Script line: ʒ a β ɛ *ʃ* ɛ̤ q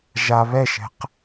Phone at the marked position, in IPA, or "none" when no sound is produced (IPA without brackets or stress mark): ʃ